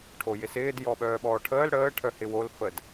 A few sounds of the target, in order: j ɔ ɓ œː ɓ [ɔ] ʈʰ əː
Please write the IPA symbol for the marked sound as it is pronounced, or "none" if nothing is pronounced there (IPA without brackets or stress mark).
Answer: ɔː